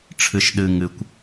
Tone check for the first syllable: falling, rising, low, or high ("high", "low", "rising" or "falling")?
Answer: high